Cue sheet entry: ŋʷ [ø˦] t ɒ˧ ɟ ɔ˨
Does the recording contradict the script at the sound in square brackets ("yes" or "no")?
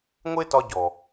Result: yes